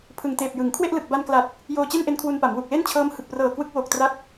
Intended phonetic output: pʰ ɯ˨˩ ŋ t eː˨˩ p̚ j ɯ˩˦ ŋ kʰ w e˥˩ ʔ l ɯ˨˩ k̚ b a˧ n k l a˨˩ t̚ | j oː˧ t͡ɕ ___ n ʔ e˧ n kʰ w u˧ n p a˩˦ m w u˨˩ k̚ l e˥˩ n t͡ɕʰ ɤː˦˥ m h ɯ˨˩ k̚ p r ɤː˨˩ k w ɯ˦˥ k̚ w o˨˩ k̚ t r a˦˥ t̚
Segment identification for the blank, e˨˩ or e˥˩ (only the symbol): e˥˩